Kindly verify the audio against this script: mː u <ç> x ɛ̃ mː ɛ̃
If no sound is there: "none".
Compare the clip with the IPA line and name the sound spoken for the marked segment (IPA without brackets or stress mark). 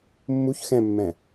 ç